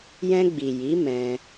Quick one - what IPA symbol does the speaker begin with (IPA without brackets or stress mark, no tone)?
j